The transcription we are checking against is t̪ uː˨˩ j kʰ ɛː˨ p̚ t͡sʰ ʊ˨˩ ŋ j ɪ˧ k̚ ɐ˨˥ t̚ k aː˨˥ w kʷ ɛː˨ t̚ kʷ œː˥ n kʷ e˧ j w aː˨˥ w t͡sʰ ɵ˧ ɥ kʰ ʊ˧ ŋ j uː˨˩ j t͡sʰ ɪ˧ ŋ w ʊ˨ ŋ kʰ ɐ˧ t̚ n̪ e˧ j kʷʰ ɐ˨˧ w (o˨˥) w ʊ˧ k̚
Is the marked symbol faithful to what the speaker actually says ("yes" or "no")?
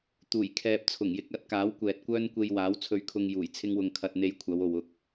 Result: no